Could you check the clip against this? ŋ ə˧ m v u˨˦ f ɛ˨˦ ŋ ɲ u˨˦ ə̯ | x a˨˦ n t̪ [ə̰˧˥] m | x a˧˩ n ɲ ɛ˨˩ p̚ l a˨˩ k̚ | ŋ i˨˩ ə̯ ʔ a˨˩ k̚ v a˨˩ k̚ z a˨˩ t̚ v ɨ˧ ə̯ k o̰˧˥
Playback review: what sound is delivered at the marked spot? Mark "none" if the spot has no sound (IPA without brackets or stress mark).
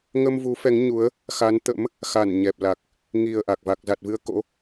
ə̰˧˥